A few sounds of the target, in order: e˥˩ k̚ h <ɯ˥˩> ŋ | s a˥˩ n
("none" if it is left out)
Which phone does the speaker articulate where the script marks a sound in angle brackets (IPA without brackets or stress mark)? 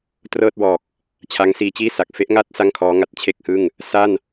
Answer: ɯ˥˩